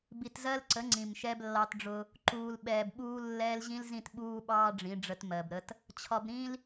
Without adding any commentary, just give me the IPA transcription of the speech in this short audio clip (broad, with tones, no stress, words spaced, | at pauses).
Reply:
bi˨tzɜ˦lǀə˨˦ ŋ͡ǀĩ˨mʃɛ˦b lːɑ˦tɖ͡ʐʊ˦ | ǃuː˨lɓɛː˨bɓuː˦ lːɛː˦l ʑĩ˦lzĩ˦˨tɓuː˦ɓɑː˦ ɖ͡ʐĩ˨˦ɖ͡ʐə˦tmɜ˨bɾə˦t | t͡ɕʰɒ˨bɾĩ˦l